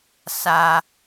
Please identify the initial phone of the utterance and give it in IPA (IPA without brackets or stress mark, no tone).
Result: s